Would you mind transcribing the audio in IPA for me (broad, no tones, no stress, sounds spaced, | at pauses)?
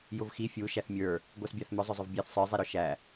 j ʊ v x i fʲ u ʃ æ θ mʲ ə˞ | ɡʷ æ s bʲ ɑ θ m ʊ zˤ ʊ zˤ ʊ v bʲ ɛ θ sˤ ə˞ zˤ i ɾ ɔ ʃ æ